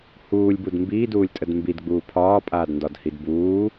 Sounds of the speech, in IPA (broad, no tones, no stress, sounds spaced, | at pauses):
h uː lʲ b u d m b iː d uː lʲ tʼ ə d m b i d ɡ͡b uː pʰ ɒː pʼ aː d n d ɒ d h i d b uː